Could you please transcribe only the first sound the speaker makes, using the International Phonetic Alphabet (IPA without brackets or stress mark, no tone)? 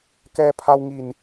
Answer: k